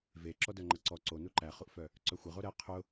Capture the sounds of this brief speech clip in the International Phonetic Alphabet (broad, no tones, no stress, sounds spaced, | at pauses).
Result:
v e ǁ ɔ d œ ŋ͡ǃ ɐ ǀ ɔ ǀ o n u ǃ æ χ u ʔ f œ | ǀ œ xʷ ɐ ʁ o ɾ ɛ qʰ ʊ